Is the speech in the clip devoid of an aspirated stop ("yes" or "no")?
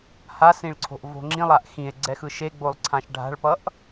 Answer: no